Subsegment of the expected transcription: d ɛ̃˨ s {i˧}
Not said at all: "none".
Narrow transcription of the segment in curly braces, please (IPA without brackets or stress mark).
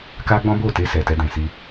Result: i˧